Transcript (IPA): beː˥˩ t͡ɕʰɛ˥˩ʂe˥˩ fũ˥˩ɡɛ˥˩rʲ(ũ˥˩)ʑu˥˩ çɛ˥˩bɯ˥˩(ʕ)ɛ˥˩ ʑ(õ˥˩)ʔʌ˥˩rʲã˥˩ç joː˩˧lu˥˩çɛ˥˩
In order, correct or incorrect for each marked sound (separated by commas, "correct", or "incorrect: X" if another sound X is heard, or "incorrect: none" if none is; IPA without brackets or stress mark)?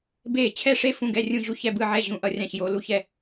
correct, correct, incorrect: ũ˥˩